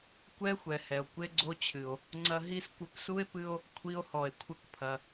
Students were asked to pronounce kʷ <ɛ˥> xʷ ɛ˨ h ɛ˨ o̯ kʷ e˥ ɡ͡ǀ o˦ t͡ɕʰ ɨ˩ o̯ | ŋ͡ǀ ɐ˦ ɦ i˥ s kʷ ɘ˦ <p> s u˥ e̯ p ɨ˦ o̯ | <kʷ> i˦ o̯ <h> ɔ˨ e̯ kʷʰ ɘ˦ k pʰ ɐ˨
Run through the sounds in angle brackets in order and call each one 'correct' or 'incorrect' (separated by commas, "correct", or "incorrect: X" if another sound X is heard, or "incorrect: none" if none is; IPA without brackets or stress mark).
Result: correct, correct, incorrect: kʷʰ, correct